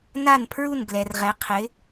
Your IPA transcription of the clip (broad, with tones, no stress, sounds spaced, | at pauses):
n a˥˧ n pʰ ɹ u˥˧ n ɡ l ɛ˧ r ʁ ɛ˧˥ qʰ ɪ˧˥